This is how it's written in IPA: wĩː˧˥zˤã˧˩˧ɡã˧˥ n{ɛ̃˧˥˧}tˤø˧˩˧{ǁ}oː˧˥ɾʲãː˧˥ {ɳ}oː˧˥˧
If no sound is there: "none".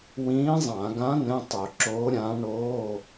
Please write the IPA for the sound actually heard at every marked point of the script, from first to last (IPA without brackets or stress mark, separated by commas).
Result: ɛ̃˧˥˧, ǁ, ɳ